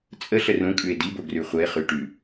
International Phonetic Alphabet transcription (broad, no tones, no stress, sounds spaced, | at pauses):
t͡sʼ ə ɬ ə r ũ kʼ ʉ e̯ d i b o ɡ r ʉ χʷ ə e̯ χ y ʈ ʉ